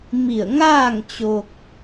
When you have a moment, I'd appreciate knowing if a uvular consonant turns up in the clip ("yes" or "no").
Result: no